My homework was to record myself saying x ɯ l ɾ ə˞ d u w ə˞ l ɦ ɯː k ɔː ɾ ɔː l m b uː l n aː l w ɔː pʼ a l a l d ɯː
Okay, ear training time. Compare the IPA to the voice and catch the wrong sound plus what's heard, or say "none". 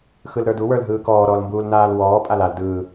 none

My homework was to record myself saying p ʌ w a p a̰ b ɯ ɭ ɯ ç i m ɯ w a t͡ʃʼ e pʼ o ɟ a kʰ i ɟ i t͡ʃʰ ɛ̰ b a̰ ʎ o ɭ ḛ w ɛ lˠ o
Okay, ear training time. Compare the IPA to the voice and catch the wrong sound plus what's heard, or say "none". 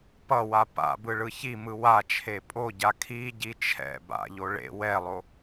t͡ʃʼ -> t͡ʃʰ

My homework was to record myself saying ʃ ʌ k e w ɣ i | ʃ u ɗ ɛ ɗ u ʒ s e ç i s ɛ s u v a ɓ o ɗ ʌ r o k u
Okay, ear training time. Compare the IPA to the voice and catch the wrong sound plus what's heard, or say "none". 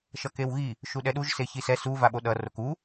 none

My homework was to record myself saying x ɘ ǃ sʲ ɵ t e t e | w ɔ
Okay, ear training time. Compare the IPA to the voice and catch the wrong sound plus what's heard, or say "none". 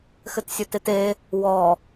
ǃ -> t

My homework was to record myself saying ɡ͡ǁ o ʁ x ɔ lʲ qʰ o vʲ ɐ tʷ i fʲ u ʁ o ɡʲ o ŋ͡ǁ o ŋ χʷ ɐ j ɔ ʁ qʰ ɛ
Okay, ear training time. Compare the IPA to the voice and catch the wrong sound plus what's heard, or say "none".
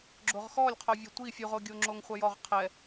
none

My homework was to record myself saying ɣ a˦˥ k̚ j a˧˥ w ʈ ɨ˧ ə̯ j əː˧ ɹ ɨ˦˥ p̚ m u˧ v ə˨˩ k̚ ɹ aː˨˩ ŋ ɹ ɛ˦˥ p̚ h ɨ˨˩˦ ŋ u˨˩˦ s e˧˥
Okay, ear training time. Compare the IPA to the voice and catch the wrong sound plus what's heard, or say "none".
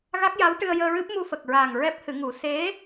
v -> f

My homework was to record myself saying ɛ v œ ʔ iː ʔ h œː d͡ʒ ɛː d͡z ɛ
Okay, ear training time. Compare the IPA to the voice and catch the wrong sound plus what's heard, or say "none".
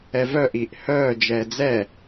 none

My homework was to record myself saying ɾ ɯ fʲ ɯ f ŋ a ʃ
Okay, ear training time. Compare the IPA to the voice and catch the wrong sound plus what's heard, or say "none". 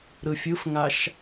none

